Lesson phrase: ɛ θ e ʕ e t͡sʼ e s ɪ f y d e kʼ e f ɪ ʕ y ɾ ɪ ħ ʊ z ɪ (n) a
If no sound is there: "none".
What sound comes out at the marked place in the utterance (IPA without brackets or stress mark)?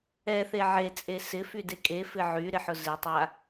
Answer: tˤ